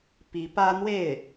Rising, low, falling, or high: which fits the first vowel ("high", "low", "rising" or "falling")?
rising